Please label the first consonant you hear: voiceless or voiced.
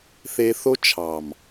voiceless